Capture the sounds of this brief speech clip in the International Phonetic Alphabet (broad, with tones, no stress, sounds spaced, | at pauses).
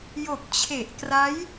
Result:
j o˨˩ k̚ t͡ɕʰ e˨˩ ʔ k r a˦˥ j